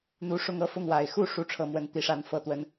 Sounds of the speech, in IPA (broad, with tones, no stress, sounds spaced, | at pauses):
n̪ u˧˥ ʂ ʊ˥˧ ŋ ɤ˥˧ f ʊ˥˩ ŋ w a˨˩ ɪ̯ x u˥˩ ʂ u˥ ʈ͡ʂʰ ɤ˥˧ m w ə˥˧ n t̪ i˥˩ ʂ a˥ n f ɤ˥˩ t̪ w ə˥ n